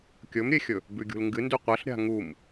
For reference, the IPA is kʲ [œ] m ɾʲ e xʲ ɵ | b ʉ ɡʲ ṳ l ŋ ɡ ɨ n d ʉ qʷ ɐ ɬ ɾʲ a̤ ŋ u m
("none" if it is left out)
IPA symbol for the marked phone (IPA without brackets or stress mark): ɵ